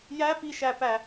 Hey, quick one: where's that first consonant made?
palate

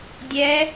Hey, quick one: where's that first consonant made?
tongue tip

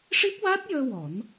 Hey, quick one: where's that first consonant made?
retroflex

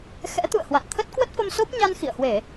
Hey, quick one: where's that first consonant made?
velum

